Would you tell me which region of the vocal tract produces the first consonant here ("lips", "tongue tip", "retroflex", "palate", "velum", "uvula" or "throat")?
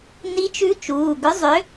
tongue tip